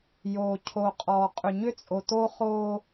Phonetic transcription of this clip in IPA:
j o˨ cʰ o˨ qʼ ɔ˨ qʼ ʏ˨ ɲ ʏ˦ t͡sʼ o˨ t o˦ χ o˦

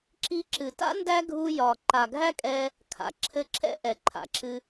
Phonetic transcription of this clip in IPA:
ǁ i˧ ǁ ɨ˨ t a̰˦ n d æ˦ ɡʱ u˧ j ɒ˨ ǃ a˨ ɡʱ æ˦ kʼ ɛ˧ | kʰ a̰˨ ǁʰ ɘ˧ ǁʰ ɛ̰˦ ʔ ɛ˨ ǃʰ a̰˨ ǁʰ ɨ˧

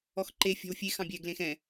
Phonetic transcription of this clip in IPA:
ɔ x ǃ e fʲ ɔ̤ w fʲ e x ɑ̃ bʲ ɛ ɡ l ẽ x ɛ̃

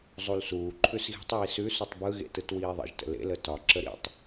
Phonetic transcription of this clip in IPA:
zˤ u l s uː ǃʰ ʉ s ɣ i̤ tˤ j i s ʉ s u tˤ b ɯ ɣ ḛ t ɯ t w iː ðˤ ə̰ ʒ t ə̰ l ḛ l ə t ɒ ǁ ə ɾ ḭ tˤ

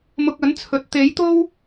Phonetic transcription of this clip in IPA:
m ʊ˧ k̚ ɐ˨˥ n t͡sʰ ɵ˨ t̚ t̪ e˨˥ j t̪ o˥ w

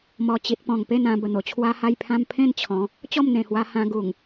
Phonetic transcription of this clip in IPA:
m ɔ˨˩ t͡ɕ i˨ t̚ p ɔ̃˨˩ ŋ p e˥˧ n ã˧ b ə˨˩ n̪ o˨˩ t͡ɕʰ w a˦ h a˦ j pʰ ã˦ m pʰ ẽ˥˧ n t͡ɕʰ ɔ̃˨˦ | t͡ɕ ɔ˥˧ m n̪ ẽ˨˩ h w a˧ h ã˧ ɡ u˨˩ ŋ

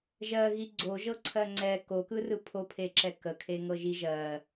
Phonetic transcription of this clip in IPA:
ʒ ɜ ɣ i ɡ͡ǀ o ʒ ɤ ǀʰ ɜ ŋ͡ǀ ɛ k o k ɯ r ɯ pʰ o pʰ e ǁ ɛ k ə kʰ e ŋ ɤ ʒ i ʒ ɜ

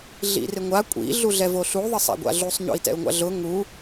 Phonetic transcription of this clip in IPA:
ɮ ḭ r ɪ ŋʷ a kʷʼ ḭ ɮ u ɮ ɛ v o ɬ u ðˤ ɪ sˤ a̰ ɡʷ a̰ ɮ u sˤ ɲ o̰ i̯ t ɛ̰ u̯ ŋʷ a̰ ɮ ʊ ŋ u

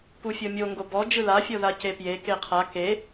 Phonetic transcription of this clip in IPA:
p u fʲ ɤ mʲ o ŋ ɡ o b ɔ d͡ʒ ɯ l a fʲ ɤ ð a c e p j e k e qʰ a k e

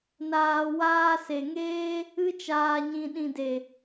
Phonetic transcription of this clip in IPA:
n aː˨ w aː˧ s e˨ ŋ eː˦ | ɨ˧ t͡ʃ aː˨ ɲ ĩ˨ ɗ ĩ˨ d e˨

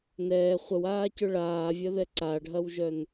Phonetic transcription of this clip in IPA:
n ɛː χʷ ə w aː c ʏ ɭ aː vʲ ɐ ð ɛ ǀ a ɖʱ ɐ w ʒ œ n

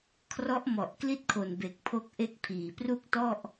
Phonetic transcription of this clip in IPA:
kʰ r ɔ˦˥ ʔ m ɔ˨˩ ʔ k l i˥˩ t̚ kʰ o˨˩ n b e˨˩ k̚ pʰ o˦˥ k̚ ʔ e˦˥ k̚ pʰ iː˨˩ p r u˥˩ k̚ t ɔ˥˩ ʔ

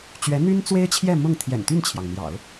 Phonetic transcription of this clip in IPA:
t͡ɕ ɥ ɛ˧˥ n̪ y˥ n t͡s w e˥ ɪ̯ t͡ɕʰ j ɛ˥˧ m ʊ˥˩ ŋ t̪ʰ j ɛ̰˨˩ n t̪ y˥˩ n t͡ɕʰ j ɑ˩ ŋ n̪ j ɑ̰˨˩˦ ʊ̯

